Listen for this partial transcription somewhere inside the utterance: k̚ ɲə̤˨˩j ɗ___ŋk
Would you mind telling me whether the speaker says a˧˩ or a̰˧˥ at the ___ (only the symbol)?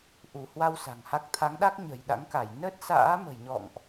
a̰˧˥